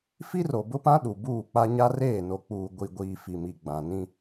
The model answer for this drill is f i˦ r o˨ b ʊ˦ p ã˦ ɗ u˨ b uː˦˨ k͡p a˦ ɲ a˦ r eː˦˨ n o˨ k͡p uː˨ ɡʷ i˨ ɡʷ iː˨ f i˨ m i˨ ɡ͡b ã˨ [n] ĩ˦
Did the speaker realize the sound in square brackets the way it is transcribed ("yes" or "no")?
yes